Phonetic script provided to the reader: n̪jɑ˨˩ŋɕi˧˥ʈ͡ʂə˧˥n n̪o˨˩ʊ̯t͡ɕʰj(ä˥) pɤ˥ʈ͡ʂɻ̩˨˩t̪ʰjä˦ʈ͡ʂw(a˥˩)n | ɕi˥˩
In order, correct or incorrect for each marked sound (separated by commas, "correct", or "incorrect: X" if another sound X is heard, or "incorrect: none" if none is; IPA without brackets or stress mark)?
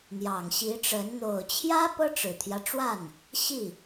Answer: correct, correct